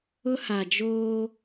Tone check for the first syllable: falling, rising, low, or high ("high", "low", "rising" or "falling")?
high